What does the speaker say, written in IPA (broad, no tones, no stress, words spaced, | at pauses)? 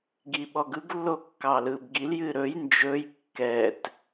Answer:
ɡiɓɔɡɯɡ lːokːɑlɯb ɡil jɨɾɵj nd͡ʒɵj kːɛt